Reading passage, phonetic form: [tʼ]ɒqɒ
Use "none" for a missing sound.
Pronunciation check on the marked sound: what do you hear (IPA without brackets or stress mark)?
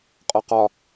qʼ